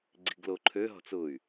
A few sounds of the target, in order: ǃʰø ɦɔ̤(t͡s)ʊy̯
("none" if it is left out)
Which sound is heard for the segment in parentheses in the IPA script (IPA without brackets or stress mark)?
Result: t͡s